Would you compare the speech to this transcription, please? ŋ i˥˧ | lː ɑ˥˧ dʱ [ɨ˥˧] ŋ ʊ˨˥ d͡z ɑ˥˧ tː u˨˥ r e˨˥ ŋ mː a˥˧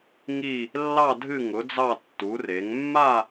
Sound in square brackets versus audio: correct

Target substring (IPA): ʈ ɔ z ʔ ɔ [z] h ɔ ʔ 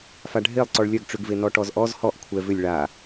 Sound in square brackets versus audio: correct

